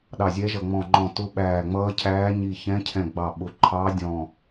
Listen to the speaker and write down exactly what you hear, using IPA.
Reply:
ɗɑ˧˩zʲɛ˧˥ʒʌ˧˩ ŋ͡mɔ̃˧˩ŋ͡ǃɔ̃˧˩ tʊ˧˥ɓæː˧˩ŋ͡mʌː˧˥cʰæː˧˥ ɲi˧˩çɛ̃˧˥cʰɛ̃˧˩ ɡ͡bɑ˧˩ ɓʊ˧˩ǃʰɑ˧˥dʲɔ̃˧˩

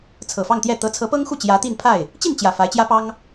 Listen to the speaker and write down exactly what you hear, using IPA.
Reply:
t͡sʰɤ˨˩fɑ˥˧ŋt̪jɛ˥˩ t̪ɤ˧˥t͡sʰɤ˧˥pɤ˥ŋxu˥˩ t͡ɕjä˧˥t̪i˥˧npʰa˥˩ɪ̯ | t͡ɕi˥˩nt͡ɕjä˨˩ fa˧˥ɪ̯t͡ɕjä˥pɑ˥ŋ

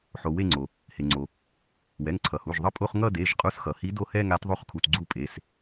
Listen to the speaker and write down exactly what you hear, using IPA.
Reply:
ħo˩ we˦˨ŋ͡ǀo˩ | he˩ŋ͡ǀo˩ | wɛ˩˧˩ŋǀʰʌ˩hu˩˧˩ʒðˤʌ˦˨ pʼo˦˨χ ŋʌ˦˨ de˩˧˩ʒqʼu˨˦sxʌ˩hi˨˦ do˦˨hɛ˦˨ŋa˨˦t ðˤo˦˨χkʰu˩˧˩tɡ͡ǀu˦˨pʼe˩˧˩s

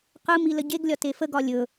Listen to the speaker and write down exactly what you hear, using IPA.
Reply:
qɯmi ləɟeɡlʲɒ tefəɡɒ lʲɵ

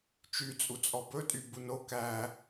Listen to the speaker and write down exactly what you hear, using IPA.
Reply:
t͡ʃy t͡sʼut͡sʼɔbɵ tʼybuno kæ

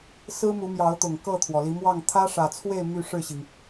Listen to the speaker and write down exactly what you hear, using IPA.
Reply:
sɹ̩˦mu˨˦mjɑ˨˦ʊ̯t̪ʊ˨˩ŋ kɤ˥˨t̪ʰwɔ˩li˨˦mwɑ˥˨ŋ t̪ʰä˦ʂä˨˩t͡sʰwe˥˨ɪ̯ my˥˨ʂɻ̩˥˨ɕi˩ŋ

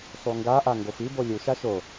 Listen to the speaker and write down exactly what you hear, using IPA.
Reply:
sˤuŋɡaʔa ŋɡofibo lʲuʃa ʃo

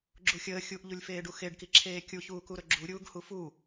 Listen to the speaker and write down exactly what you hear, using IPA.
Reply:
ɡ͡ǁuxʲəː xʲuʔʎulʲfeːɖu xeɖkiǁʰeː kʲuçuːkuɾɵ ɡ͡ǁu ɾʲuːɡhufu

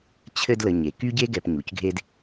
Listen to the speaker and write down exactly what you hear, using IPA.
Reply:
t͡ɕʰɘ˦dlə˨ ɲe˩ ky˥ɟe˥ɡɛ˨p ɲu˩cɡʱe˦d

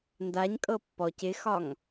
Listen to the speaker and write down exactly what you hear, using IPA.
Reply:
ndaɲkʼɤ pːɔc ɪxɒŋ

